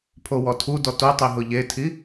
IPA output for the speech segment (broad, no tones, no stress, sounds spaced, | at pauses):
pʰ o w ɔ tʰ u d ɔ t o tˤ i ɦ ʊ ʎ e tʰ i